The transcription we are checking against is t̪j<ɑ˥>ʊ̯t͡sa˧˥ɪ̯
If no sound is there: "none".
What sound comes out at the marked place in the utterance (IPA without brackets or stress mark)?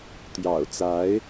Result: ɑ̰˨˩